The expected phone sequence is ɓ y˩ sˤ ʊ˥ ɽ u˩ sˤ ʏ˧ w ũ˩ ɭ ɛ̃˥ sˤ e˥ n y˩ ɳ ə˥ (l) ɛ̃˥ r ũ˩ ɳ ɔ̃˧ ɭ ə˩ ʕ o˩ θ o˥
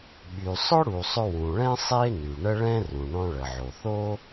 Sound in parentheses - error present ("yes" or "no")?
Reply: yes